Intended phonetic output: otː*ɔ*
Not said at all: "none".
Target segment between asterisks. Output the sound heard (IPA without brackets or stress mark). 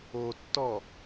ɔ